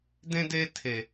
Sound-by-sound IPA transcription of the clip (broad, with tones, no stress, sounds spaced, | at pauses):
d ẽ˧ d e˧ tʰ e˨